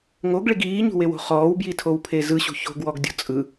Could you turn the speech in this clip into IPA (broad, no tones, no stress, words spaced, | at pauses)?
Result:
ŋoɡɭiɡ iːɲṳwewo̤ χɔːwbjitʰowpʰe zɯɕṳ ço̤ɡwɔɡdʲɔ̤ t͡sʼɯ